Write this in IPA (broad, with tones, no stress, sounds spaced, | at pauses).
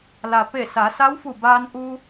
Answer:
l a˩ p e˧˩ s a˩˧ s a˧˥ w f u˧˩ b aː˧ n ʔ u˧